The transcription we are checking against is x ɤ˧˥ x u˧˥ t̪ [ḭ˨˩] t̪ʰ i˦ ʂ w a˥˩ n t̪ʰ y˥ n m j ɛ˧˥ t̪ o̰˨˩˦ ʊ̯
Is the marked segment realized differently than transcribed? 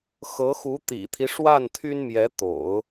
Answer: no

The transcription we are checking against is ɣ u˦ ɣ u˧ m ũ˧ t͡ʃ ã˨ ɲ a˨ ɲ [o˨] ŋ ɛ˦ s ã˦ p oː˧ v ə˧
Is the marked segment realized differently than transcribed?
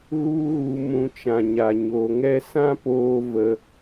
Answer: no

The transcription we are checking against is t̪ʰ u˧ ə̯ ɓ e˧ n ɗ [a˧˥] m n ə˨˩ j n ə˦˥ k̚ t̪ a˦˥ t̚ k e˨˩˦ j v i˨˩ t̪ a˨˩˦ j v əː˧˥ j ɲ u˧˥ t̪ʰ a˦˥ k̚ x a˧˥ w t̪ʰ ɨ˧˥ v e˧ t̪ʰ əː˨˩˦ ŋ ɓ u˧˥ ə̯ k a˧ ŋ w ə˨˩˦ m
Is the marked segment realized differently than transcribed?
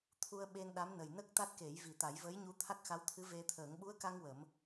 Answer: no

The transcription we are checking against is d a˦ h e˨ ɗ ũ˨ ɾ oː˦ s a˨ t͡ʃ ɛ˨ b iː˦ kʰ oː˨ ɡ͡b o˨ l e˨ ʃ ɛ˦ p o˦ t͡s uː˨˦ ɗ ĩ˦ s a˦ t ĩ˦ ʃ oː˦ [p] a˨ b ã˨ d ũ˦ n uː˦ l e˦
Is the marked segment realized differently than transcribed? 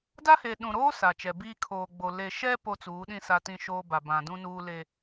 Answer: yes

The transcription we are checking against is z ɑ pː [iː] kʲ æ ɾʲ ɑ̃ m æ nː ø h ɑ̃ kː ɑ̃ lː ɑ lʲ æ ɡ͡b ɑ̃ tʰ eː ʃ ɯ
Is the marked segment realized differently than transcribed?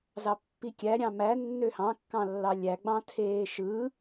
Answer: yes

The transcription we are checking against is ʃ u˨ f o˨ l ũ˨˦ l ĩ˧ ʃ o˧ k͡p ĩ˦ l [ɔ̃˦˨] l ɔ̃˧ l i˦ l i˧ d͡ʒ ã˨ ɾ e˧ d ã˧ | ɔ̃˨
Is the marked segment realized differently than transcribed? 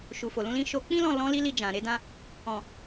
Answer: no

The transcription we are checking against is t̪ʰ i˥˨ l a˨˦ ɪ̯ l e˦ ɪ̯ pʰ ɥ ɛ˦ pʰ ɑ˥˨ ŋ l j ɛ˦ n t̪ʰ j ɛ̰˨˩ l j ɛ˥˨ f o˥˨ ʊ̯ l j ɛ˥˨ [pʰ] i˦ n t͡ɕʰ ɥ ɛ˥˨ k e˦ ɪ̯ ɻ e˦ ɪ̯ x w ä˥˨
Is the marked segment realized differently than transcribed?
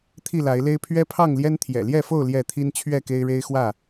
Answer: yes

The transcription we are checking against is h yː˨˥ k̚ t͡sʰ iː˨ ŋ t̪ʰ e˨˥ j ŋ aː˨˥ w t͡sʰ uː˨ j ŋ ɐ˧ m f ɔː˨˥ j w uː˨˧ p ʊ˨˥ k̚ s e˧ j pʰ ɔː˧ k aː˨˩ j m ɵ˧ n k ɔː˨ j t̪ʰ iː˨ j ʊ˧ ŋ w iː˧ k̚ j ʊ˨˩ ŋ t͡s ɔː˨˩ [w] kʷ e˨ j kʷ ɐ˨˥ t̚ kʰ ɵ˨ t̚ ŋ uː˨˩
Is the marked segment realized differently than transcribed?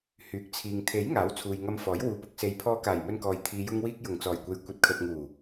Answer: yes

